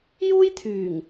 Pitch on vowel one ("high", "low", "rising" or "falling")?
high